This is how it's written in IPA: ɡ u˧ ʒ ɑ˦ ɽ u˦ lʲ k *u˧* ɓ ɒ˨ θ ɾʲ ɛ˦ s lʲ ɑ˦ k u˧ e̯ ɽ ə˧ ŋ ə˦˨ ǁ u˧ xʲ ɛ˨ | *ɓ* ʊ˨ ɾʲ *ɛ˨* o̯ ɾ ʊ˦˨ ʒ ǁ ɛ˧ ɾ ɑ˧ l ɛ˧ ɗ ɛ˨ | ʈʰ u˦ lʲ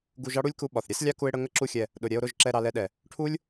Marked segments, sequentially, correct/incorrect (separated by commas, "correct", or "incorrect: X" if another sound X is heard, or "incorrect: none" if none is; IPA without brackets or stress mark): correct, incorrect: ɗ, incorrect: ɛ˧